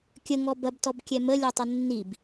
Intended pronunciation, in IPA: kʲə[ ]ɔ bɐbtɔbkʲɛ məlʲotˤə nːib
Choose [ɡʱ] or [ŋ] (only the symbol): ŋ